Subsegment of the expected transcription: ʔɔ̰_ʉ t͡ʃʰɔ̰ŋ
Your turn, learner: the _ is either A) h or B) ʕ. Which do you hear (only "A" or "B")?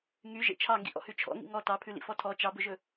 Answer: A